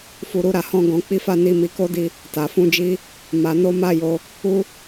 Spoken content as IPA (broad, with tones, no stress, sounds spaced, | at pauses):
f u˧ ɾ u˦ ɾ a˧ h ɔ̃˦ ɡ ɔ̃˧ k͡p i˦ f a˦ n i˧ m i˧ k o˦ d i˧ | t a˨ f ũ˧ d͡ʒ i˧ | m a˧ n o˦ m a˦ j o˧ | u˦